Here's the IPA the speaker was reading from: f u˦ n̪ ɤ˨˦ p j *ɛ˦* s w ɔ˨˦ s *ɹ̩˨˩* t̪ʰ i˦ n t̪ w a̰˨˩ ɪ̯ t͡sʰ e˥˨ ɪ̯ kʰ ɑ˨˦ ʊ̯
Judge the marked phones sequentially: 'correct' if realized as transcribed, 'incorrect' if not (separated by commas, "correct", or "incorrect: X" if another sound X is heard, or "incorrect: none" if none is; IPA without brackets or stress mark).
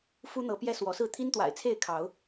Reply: correct, incorrect: ɹ̩˥˨